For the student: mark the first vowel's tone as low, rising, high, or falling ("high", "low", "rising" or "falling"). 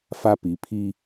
high